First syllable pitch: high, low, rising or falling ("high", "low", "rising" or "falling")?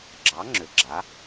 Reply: rising